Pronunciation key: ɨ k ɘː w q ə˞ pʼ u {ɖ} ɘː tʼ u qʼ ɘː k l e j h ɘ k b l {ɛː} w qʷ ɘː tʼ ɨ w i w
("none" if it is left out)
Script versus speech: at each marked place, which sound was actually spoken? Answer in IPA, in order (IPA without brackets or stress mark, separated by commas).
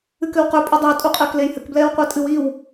dˤ, ɛː